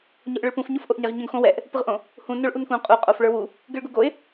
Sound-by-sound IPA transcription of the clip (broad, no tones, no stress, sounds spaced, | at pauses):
ɲ o ʔ ɭ ɯ ɭ p ũ f ɲ u f ʔ o ʔ ɲ ɛ ʁ ɲ õ ɡ x õ w ɛ ʔ | p ɯ ʁ ʔ õ | h ũ n o ɭ ʔ u n k ũ qʼ u qʼ o f ɭ ə˞ w u | ɡ ɯ ɭ ɡ u ɡ o ɪ̯